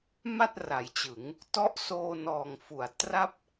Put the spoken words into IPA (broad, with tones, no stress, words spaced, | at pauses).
ma˥˩t̚ra˩˦jt͡ɕɯ˩˦ŋ | tɔ˦˥ʔsoː˧ nɔː˨˩ŋfu˩˦a̯ tra˥˩p̚